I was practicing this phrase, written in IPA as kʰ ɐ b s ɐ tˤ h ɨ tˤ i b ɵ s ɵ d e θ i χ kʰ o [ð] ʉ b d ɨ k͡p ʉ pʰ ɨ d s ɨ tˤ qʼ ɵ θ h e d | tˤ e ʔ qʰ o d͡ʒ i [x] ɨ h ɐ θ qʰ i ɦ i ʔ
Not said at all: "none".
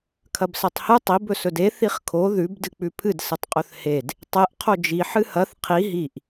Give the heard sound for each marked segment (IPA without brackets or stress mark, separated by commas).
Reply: ð, ħ